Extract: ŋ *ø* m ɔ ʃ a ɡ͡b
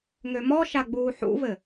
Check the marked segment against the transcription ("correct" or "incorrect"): correct